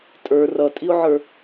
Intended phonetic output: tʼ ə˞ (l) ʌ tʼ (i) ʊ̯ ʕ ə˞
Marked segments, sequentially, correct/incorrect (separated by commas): incorrect, correct